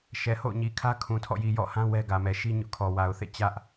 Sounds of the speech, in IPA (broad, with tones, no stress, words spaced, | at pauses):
ʃɛ˨ho̰˦˨ʊ̯ɲi˨kʰä˦ kʰũ˨tʰɔ̰˦˨ji˨ jɔ̰˦˨hã˦ wɛ˦ɡä˨mɛ˨ ʃi˦ ɲʊ˦ʔkʰɔ˨ wa˨ʊ̯θḛ˦˨ t͡ɕä˦ʔ